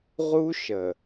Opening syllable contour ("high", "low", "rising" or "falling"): high